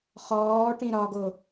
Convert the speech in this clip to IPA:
χ ɔː ʈ ĩ ɾ ɒ ɡ o

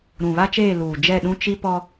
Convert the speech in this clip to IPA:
ɾ ũ˨ β a˦ t͡ʃ eː˦˨ l uː˨ d͡ʒ ɛ˦˨ ɗ ũ˦ t͡ʃ i˦ p ɔ˦

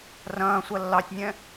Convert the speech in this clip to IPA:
r ɐ̃ː sʷ ɐ lː ɑ tʲ nʲ ɛ̃

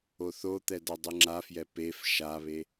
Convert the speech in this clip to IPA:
o θ o t̪ ɛ d ʌ dˤ ɯ ŋ͡ǁ a f j ɛ p e f ʃ a β e

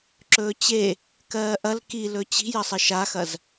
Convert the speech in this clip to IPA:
ǁ ɵː t͡ɕ e | k ɜː ʔ ɐ l k i l ɵ t͡ɕ i̤ j ɐ sˤ ə ʃ a x ɐ z

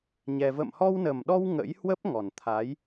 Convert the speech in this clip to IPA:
ɲ ɛ˧ v ə̰˧˨ m h ɔ˧ w n ə˨˩ m ɗ ɔ˧ w ŋ ə̰˧˥ j h w ə˦˥ p̚ ŋ ɔ˨˩ n t̪ʰ a˨˦ j

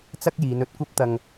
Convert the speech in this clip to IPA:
t͡s ɐ˥ k̚ j iː˨˧ n ɵ˧ t̚ kʷ ɐ˥ p̚ t̪ ɐ˧ ŋ

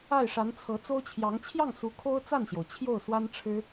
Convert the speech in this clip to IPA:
a˥˩ ɪ̯ ʂ a˧˥ n t͡sʰ ɤ˧˥ t͡s o˥ ʊ̯ t͡ɕʰ j ɑ˧˥ ŋ t͡ɕʰ j ɑ˥˩ ŋ s u˧˥ kʰ o˥ ʊ̯ t͡s a˥˩ n ɕ j o˩ ʊ̯ t͡ɕʰ j o˥˩ ʊ̯ s w a˥ n ʈ͡ʂʰ ɻ̩˥

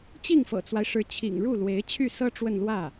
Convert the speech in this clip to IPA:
t͡ɕ i˥˩ ŋ f ɤ̰˨˩ t͡s w a˦ ɪ̯ ʂ ɻ̩˧˥ t͡ɕʰ ḭ˨˩ ŋ ɻ u˥˩ l w e˧˥ ɪ̯ t͡ɕʰ y˥˩ s ɤ˥ ʈ͡ʂ w ə˥˧ n l w ä˥˩

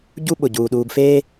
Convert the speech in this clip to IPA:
ɟ u˥ ɓ ʊ˩ ɟ uː˩ ɗ uː˨ b f eː˥

